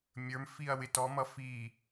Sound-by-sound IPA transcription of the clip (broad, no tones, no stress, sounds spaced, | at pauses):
mʲ ə˞ m f i ɐ̯ w ɪ t ɔ m ʌ f i